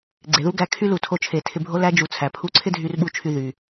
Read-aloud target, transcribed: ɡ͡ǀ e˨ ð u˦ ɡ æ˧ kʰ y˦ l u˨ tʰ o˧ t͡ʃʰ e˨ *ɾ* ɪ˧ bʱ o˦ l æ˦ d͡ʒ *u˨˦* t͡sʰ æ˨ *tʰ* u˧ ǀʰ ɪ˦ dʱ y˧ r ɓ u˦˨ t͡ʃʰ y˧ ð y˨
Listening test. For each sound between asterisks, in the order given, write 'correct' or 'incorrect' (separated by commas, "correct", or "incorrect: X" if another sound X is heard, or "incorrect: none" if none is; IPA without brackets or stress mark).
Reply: incorrect: tʰ, correct, incorrect: pʰ